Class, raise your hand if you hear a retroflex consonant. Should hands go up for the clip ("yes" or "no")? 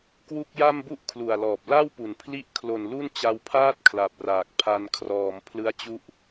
no